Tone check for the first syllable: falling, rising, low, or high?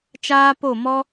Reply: high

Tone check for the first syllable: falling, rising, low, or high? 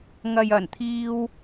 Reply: low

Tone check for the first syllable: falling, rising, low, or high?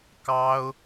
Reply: high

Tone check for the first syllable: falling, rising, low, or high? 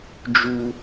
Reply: high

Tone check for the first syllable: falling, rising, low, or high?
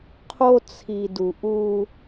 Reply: high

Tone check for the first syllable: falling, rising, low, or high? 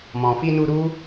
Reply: low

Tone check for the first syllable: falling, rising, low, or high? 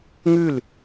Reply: falling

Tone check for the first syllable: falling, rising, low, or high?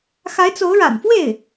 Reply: rising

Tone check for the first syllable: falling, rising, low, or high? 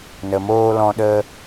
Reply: low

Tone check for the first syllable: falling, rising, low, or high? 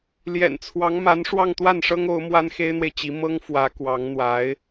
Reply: low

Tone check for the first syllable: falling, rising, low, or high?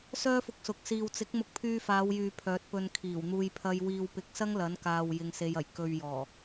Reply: high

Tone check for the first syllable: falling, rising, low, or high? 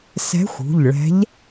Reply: rising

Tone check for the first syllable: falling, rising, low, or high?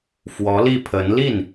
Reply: rising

